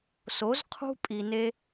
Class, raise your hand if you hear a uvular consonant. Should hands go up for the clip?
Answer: yes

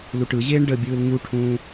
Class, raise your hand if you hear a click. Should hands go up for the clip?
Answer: no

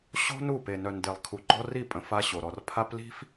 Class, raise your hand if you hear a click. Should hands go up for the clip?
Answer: yes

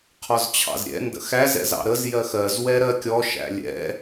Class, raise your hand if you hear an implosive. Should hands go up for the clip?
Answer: no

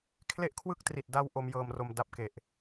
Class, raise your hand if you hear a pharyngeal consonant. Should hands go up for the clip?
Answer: no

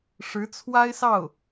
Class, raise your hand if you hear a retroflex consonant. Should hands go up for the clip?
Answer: yes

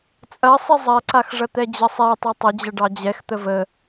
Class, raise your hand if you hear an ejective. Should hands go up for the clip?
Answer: yes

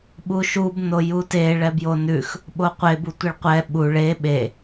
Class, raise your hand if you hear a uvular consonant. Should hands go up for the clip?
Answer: yes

